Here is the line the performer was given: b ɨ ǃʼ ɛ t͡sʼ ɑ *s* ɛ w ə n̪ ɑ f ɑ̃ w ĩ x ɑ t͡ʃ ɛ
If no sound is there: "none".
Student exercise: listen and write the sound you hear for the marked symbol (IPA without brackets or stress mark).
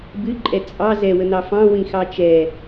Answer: z